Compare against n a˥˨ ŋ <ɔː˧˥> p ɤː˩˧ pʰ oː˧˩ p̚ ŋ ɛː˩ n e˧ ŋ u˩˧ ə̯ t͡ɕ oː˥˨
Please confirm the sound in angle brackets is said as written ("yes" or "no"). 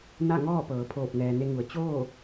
no